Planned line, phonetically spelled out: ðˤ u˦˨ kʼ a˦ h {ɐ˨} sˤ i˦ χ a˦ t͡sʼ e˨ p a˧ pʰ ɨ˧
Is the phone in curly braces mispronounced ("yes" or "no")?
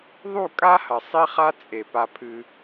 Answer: no